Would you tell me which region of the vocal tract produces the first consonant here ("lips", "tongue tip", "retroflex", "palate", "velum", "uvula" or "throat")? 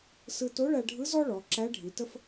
tongue tip